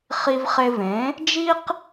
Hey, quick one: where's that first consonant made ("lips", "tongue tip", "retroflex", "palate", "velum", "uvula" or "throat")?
uvula